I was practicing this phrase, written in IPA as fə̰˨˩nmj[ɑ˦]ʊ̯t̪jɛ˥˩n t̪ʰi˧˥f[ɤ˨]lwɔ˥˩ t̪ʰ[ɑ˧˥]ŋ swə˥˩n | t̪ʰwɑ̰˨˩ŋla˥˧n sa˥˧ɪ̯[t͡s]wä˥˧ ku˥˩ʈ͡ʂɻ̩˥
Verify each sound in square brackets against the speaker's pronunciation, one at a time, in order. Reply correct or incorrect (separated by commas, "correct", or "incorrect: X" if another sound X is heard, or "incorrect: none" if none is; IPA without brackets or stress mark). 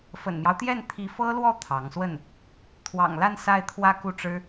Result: correct, incorrect: ɤ˥, correct, incorrect: t̪ʰ